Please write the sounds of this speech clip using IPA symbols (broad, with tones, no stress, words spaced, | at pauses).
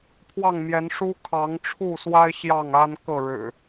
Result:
pʰwɑ˥˨ŋmjɛ˨˦n ʂu˦kʰɑ˨˦ŋʈ͡ʂʰu˥˨swa˦ɪ̯ ɕjɑ˥˨ŋa˦n kɤ˥˨ɻɻ̩˨˩